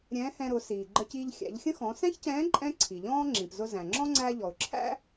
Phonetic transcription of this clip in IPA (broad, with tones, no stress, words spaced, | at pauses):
ɾʲɛ̃ː˧˥hɛ̃˧ɾʊ˩˧ siː˩ɡ͡ǃə˧ciː˧ʎ xʲæ̰˩˧ʎxʲə̃˥xɔ̃˩˧ sɛ̃˥çcɛ̃ː˧˥ ǃʼɛ̃˥ǀʰi˩ʎɔ̃ː˥ ŋ͡ǁĩ˩pzʊ˧ zæ̃˩ŋ͡ǁɔ̃˥ ŋ͡ǀæ˧ ʎɔ˩ʊ̯ǁʰæ̰˥